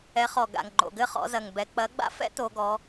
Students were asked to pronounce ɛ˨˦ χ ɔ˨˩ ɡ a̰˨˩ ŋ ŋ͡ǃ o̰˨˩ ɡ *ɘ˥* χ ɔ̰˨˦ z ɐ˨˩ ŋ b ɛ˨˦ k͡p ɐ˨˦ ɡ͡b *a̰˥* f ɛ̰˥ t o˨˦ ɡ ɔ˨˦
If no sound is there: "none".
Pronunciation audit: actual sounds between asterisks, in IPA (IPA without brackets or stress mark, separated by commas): ɘ˥, a̰˥